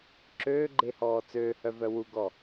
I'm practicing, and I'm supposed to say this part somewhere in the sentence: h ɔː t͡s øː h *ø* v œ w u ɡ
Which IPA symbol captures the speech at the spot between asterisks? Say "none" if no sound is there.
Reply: œ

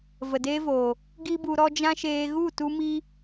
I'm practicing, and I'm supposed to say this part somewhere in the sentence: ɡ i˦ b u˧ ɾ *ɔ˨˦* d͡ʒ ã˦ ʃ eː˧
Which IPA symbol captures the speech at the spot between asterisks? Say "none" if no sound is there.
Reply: ɔ˦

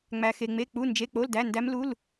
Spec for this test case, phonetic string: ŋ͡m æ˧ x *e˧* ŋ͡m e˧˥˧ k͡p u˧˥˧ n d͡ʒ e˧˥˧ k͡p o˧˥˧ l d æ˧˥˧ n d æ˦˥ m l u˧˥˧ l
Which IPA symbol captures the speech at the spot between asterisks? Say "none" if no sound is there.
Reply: e˧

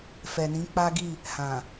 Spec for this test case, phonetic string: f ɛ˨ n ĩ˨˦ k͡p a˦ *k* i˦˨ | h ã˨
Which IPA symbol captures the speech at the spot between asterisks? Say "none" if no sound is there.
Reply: ɡ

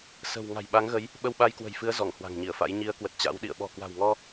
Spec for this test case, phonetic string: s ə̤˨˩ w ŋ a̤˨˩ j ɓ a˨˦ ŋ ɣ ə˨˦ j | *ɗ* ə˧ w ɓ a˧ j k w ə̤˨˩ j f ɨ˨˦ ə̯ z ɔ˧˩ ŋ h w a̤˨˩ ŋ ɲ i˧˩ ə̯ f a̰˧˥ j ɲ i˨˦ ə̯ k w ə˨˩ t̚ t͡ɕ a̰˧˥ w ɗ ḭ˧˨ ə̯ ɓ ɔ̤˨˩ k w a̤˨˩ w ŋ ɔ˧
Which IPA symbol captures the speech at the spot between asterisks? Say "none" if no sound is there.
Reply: ɓ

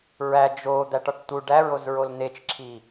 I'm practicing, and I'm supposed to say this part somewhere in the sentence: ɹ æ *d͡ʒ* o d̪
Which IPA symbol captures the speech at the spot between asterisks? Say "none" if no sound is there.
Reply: d͡ʒ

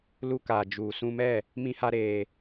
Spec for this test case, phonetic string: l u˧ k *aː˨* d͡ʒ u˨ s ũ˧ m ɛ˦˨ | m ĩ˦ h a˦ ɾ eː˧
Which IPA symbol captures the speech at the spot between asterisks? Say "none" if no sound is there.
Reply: aː˨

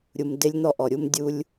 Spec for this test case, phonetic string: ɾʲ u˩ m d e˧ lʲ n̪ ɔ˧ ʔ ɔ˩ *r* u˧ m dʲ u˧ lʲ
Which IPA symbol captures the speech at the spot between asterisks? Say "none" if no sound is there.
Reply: ɾʲ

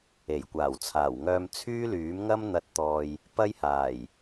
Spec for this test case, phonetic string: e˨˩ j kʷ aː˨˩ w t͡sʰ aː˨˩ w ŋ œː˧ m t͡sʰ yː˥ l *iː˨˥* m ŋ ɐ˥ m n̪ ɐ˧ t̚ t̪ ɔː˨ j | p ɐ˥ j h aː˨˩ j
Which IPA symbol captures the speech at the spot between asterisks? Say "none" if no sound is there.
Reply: yː˨˥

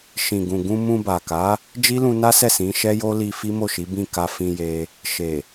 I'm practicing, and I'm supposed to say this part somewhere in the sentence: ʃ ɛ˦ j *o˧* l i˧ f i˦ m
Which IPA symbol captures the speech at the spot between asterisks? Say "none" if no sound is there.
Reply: o˦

